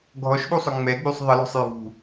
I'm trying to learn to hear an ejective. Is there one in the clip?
no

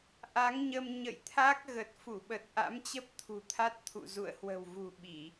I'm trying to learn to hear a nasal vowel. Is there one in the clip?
no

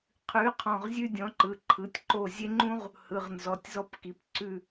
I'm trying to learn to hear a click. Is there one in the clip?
yes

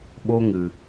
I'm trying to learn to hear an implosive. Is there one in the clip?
yes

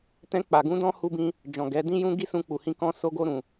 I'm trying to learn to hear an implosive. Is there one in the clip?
no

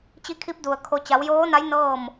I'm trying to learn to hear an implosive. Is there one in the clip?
no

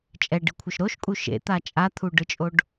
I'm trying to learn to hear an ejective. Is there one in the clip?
yes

